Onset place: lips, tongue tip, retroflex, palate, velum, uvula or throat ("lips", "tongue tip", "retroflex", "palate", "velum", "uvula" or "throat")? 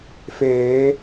lips